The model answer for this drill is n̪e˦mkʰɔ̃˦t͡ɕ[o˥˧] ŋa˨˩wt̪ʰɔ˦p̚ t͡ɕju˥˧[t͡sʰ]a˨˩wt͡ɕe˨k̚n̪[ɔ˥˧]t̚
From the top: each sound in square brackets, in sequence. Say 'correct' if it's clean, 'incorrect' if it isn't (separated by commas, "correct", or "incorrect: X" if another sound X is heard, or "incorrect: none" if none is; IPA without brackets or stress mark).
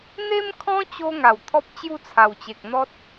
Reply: incorrect: o˧, correct, incorrect: ɔ˦